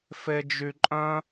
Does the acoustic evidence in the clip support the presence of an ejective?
yes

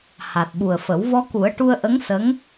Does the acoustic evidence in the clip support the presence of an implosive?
yes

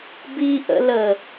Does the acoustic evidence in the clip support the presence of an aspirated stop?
no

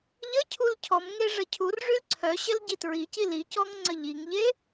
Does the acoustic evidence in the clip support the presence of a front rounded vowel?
yes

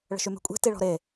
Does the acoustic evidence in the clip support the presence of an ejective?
yes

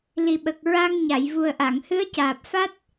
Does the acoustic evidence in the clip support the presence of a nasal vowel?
no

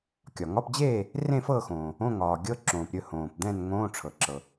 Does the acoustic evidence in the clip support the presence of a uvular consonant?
no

